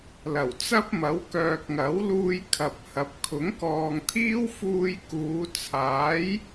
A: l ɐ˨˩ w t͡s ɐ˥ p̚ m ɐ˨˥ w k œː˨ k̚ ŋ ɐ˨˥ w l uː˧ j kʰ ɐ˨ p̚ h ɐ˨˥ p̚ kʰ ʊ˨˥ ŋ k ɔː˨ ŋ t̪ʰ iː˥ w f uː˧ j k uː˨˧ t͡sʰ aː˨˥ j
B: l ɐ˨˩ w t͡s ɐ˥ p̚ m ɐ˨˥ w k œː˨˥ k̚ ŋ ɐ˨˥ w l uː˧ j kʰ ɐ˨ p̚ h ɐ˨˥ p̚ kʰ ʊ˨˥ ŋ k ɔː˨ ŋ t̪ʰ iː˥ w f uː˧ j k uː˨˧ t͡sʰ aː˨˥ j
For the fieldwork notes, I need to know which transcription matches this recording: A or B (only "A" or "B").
A